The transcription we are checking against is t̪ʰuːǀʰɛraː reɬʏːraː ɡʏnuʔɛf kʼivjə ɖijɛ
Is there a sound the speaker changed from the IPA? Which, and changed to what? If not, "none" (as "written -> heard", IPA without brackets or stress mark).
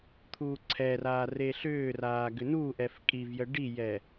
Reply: none